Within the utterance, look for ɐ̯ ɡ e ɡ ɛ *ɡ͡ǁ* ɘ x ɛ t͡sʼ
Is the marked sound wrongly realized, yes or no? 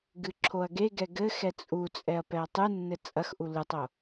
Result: yes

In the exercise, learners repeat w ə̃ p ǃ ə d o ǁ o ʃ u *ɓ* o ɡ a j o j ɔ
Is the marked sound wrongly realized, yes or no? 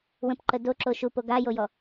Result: yes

